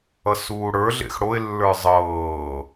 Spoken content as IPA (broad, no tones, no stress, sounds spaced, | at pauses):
ʌ s uː ɽ ə˞ ɮ ḛ x ɽ o ɪ̯ lː ə˞ zˤ ɤː